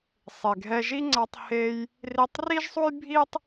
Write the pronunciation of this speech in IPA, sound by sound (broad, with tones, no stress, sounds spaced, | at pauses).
sˤ e˩ ɡʱ ɛ˧ ʒ i˥ ŋ͡ǀ a˧ tˤ h e˧ j | r i˧ tˤ r i˥ ʒ sˤ u˥ j bʱ i˥ tˤ